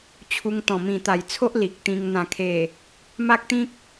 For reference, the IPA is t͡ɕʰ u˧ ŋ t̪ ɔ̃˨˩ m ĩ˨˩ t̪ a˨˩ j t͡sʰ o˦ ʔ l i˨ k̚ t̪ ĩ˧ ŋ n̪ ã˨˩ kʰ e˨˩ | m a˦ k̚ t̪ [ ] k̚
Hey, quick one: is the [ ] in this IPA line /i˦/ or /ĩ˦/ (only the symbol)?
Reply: ĩ˦